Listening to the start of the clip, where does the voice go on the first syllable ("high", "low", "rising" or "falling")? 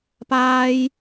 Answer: high